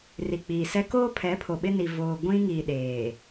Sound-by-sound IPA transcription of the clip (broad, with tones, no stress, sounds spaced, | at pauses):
r i˨ k͡p iː˨ s ɛ˦ k oː˦ pʰ ɛ˨˦ pʰ o˨ ɓ ɪ˦ n i˨ v oː˨ ɡʷ ĩ˦ ŋ iː˨ ɗ eː˨